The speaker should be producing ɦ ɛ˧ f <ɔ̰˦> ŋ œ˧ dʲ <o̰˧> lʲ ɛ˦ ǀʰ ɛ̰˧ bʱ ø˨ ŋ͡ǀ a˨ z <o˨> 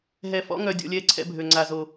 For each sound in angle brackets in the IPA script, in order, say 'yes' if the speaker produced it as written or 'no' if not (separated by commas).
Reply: yes, no, yes